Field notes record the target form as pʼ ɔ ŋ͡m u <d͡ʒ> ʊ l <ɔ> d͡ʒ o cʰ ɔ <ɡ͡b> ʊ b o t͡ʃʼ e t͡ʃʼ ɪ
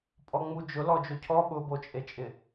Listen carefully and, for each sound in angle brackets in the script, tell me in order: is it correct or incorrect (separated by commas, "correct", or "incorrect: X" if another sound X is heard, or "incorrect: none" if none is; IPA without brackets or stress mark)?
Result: correct, correct, incorrect: ɓ